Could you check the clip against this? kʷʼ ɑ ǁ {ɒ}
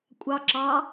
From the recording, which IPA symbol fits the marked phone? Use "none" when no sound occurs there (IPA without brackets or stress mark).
ɑ